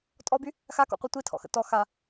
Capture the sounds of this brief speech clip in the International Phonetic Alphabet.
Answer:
tʼ ɔ b y | x a k ɔ̰ qʷ i tʷ i tʰ ɔ̰ x ə̰ t ɔ x a

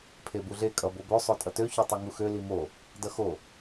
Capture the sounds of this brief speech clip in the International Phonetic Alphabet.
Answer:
pʰ e b u ɮ e kʼ ʌ b o b ø sˤ o tʼ ʌ t ø ç ø tˤ ø ŋ u x ø l i m o | d ʌ x o

